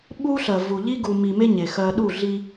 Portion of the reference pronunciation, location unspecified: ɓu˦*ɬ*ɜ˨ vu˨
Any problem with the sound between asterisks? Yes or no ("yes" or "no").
no